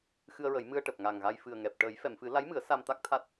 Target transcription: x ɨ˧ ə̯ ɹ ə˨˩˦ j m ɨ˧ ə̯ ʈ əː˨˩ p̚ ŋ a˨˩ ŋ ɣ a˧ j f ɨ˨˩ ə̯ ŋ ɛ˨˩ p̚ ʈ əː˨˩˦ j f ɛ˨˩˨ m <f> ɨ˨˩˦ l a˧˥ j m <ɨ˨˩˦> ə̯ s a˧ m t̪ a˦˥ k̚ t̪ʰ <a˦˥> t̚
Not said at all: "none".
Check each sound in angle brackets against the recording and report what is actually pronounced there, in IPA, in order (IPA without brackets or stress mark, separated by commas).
f, ɨ˨˩˦, a˦˥